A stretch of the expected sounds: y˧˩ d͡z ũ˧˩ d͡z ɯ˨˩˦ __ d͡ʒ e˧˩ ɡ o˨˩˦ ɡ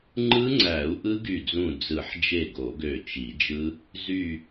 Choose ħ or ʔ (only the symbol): ħ